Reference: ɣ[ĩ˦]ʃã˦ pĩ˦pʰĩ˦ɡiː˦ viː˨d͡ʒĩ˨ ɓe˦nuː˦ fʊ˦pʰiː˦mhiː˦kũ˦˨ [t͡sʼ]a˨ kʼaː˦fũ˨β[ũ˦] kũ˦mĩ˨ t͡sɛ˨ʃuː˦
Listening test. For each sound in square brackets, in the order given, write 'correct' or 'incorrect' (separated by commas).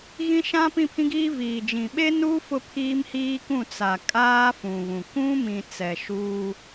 correct, incorrect, incorrect